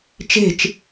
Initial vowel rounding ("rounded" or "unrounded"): unrounded